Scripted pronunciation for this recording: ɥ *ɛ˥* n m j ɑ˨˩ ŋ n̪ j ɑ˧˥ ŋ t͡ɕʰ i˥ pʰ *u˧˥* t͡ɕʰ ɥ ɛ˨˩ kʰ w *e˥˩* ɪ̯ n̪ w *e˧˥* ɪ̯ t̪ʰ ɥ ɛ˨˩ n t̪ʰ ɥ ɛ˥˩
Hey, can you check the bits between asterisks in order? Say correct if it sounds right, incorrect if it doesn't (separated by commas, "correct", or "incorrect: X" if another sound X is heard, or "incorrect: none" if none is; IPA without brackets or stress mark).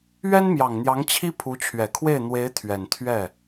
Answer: correct, correct, correct, correct